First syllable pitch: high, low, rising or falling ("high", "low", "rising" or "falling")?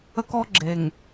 high